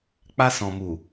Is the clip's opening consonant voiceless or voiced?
voiceless